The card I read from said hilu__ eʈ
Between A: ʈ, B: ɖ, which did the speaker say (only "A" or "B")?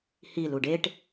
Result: B